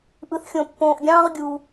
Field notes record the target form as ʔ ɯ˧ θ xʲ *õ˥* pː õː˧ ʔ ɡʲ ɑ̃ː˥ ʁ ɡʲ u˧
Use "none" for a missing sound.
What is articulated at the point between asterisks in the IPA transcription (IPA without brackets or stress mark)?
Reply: õ˧